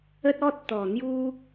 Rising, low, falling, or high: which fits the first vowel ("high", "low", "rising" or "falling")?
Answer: high